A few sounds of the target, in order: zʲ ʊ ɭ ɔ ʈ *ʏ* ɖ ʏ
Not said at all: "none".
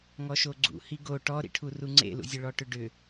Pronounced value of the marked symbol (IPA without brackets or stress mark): ʏ